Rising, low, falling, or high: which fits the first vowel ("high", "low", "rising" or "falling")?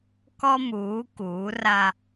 high